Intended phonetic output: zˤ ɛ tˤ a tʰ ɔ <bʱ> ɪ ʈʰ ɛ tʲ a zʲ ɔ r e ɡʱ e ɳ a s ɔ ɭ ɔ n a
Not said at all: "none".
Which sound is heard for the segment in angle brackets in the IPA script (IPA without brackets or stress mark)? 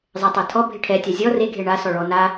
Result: bʱ